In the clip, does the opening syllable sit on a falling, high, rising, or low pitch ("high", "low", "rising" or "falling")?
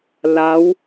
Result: rising